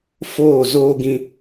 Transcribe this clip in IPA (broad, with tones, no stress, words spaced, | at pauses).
foː˦˨zoː˦ ɡĩ˧